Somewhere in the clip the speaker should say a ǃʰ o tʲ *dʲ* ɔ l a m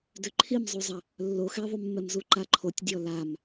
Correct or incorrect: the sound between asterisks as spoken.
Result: correct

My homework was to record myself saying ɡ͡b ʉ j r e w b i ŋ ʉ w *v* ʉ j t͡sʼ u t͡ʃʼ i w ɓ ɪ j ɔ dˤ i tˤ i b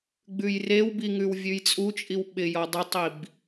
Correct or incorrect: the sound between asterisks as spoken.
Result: incorrect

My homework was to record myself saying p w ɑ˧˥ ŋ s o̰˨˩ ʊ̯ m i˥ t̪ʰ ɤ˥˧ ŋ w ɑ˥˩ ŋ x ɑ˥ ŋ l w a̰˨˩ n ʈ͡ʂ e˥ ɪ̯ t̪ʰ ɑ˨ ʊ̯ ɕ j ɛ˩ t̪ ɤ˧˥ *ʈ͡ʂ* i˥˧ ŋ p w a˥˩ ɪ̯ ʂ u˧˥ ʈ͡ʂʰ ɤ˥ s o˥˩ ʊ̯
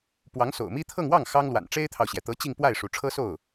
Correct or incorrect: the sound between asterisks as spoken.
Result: incorrect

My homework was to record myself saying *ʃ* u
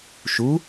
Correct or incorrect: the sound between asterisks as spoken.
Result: correct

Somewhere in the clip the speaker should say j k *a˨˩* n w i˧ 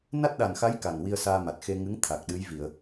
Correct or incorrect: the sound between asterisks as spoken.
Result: correct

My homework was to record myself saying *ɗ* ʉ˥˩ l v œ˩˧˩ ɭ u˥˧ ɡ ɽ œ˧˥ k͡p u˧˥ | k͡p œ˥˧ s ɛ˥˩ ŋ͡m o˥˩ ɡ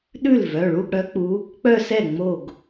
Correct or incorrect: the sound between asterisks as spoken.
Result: correct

